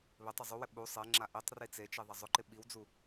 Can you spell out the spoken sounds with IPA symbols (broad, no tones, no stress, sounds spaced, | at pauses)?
β ɪ tˤ ɪ zˤ u w ɪ ɓ u sˤ e ŋ͡ǁ a ʔ i tˤ r i t͡s e t͡ʃ i ðˤ ɛ zˤ ʊ ǃ ɪ ɓ i w d͡z u